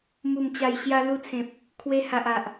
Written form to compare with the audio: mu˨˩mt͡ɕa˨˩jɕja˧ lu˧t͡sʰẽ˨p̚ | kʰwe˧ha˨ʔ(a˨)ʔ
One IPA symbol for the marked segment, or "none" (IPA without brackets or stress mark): a˨